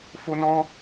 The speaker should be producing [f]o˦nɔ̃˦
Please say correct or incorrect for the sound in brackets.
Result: correct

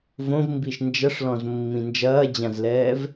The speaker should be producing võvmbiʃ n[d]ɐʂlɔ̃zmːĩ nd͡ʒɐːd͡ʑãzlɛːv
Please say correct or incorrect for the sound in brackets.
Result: incorrect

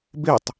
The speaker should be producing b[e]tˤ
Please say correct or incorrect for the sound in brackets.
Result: correct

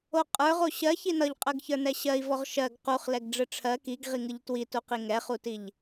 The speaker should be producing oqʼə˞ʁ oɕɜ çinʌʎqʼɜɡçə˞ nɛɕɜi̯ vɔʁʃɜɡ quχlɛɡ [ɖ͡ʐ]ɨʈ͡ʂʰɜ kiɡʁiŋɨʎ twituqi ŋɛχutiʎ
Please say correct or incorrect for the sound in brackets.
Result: correct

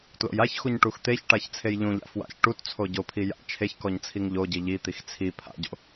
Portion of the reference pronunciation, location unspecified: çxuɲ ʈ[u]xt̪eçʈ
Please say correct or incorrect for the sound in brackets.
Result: correct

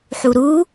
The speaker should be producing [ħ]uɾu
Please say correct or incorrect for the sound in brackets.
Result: correct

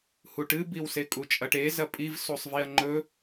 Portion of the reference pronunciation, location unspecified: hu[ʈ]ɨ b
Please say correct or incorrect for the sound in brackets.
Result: correct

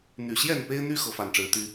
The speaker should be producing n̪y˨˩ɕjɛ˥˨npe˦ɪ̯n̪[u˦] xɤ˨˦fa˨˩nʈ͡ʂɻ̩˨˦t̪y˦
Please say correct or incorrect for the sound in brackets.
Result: incorrect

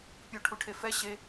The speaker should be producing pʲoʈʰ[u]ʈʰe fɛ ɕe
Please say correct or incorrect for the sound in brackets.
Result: correct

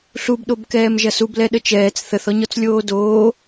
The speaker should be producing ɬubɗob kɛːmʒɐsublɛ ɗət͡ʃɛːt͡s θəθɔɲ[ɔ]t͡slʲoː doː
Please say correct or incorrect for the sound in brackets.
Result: correct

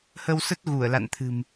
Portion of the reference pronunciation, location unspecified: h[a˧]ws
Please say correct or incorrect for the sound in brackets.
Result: incorrect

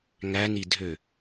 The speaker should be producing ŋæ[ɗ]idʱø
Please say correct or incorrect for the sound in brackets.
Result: incorrect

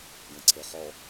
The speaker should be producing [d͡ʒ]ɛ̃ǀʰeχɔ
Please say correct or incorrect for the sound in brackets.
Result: incorrect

